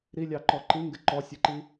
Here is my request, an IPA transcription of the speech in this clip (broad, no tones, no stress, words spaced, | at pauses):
ɾilʲɑǃɔ ǃiŋɡɪ ǃɔsʲɛǃi